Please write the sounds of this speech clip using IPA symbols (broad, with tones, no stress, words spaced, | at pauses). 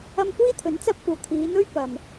ɐ˧mkʷiː˥t̪ʰɵ˨˥n t͡sɐ˧p̚kʷɐ˨˩w t̪ʰiː˨˧n̪ɵ˥ɥ pɐ˨m